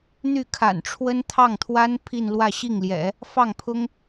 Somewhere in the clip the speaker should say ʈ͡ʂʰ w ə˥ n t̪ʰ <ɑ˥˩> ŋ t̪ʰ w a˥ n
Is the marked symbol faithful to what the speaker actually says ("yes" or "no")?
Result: yes